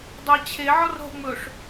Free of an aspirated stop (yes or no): no